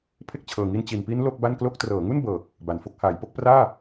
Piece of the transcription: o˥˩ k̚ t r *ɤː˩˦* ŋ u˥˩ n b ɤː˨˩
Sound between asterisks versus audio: correct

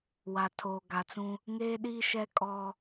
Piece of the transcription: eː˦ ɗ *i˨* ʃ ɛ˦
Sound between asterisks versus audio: incorrect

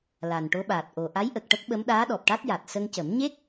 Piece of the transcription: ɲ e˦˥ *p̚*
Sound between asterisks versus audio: incorrect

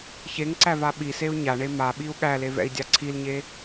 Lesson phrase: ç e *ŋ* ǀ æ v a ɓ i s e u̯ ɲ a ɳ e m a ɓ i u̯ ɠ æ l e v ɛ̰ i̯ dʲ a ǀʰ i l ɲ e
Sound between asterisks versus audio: correct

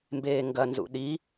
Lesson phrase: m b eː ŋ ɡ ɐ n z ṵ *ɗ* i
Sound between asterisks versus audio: correct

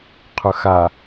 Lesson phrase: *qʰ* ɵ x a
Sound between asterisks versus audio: correct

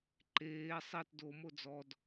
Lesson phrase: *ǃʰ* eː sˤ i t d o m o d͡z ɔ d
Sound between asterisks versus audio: incorrect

